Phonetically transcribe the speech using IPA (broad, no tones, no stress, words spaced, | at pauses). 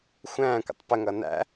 xʷæ̃ːkʷə̰tˤ pəŋʌ næ̰